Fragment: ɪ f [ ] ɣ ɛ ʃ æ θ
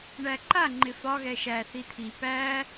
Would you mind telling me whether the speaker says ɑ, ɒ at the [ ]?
ɒ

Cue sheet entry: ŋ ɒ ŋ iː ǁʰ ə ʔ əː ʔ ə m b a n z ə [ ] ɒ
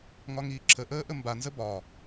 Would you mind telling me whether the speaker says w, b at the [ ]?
b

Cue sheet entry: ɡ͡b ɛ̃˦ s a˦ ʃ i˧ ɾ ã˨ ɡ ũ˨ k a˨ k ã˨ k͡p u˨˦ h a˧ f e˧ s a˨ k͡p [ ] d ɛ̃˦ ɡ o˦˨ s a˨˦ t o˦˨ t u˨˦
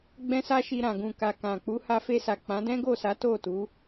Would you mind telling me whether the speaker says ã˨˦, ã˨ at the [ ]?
ã˨˦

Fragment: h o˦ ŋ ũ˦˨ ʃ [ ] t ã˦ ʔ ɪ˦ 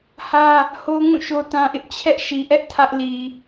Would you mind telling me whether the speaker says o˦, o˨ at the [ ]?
o˦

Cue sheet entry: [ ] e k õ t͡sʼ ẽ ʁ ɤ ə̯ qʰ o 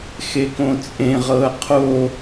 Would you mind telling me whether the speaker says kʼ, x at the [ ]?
x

